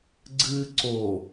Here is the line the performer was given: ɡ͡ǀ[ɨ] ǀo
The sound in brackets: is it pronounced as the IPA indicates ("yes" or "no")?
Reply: yes